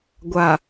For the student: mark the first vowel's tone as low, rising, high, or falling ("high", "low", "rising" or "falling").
low